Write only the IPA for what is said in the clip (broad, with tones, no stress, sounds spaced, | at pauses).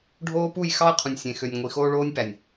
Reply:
ɖʱ oː˦ p u˦˨ j x ɑ˦ ɐ̯ qʰ ũ˨ nʲ sʲ ẽ˨ x ø˨ nʲ ŋʷ i˨ x oː˦ ɭ oː˦ nʲ p æ˨ nʲ